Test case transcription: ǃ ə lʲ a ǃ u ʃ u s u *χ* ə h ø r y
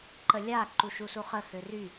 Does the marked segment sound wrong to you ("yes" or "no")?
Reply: no